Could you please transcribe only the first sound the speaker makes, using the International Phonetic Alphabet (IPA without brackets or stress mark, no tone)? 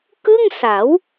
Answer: k